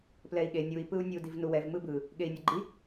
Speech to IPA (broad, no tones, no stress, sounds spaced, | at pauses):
p l ɛ i̯ ɠ e nʲ u i̯ p ɯ u̯ nʲ u d i v n u w ɛ v m ɯ b ɯ | ɠ e i̯ nʲ ʌ ɡ͡ǃ i